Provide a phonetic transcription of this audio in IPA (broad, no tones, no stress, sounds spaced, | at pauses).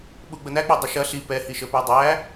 ɓ u ɡ͡b ə n æ k͡p æ dˤ ɐ ʃ ɐ ɬ i p ɛ h i ʃ ə p o dˤ æ